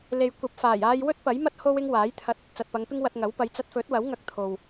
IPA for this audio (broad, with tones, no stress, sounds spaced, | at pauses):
l e˨ j kʷ ɐ˨ p̚ f aː˨˩ j aː˧ j w ɵ˥ t̚ p ɐ˨˥ j m ɐ˥ t̚ h o˥ w ɪ˥ ŋ w aː˨˥ j t̪ʰ ɐ˧ t̚ | t͡s ɐ˨ t̚ p ɐ˨˧ ŋ p ɪ˥ ŋ w ɐ˧ t̚ ŋ ɐ˨˥ w p ɐ˨˧ j t͡s ɐ˧ t̚ f ɵ˨˥ t̚ w ɐ˨˥ w ŋ ɐ˧ k̚ t̪ʰ o˨ w